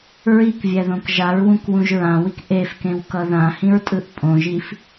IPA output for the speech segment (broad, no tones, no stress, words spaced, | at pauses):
ɹikvʲɛðõk ʒaɹwũkwũʒ ɹãwik ʔefkẽwkʌ ðãhĩɹtʼɯʔ pʼõʒif